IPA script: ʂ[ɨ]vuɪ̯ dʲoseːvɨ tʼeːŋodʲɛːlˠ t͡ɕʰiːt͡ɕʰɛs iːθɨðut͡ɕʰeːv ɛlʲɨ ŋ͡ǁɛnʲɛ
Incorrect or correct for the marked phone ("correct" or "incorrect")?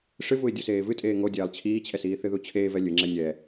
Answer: correct